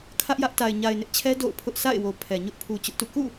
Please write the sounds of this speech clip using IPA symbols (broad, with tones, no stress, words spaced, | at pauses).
kʰä˦ʔjä˦ʔta˨ɪ̯ ɲa˨ɪ̯nɪ˦ʔt͡ɕʰɛ˦ do̰˦˨ʊ̯pʰʊ˦ʔ sʰa̰˦˨ɪ̯wo˨ pʰɛ˨ɲʊ˦ʔ pʰu˨ t͡ɕʊ˦ʔtṵ˦˨ kṵ˦˨